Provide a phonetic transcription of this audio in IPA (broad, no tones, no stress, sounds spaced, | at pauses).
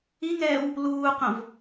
i ŋ ɛː w | l uː q õ v